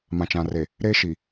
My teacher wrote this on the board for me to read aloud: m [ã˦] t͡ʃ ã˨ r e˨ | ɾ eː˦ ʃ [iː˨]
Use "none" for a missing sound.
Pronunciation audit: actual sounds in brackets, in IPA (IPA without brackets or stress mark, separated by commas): ã˨, i˨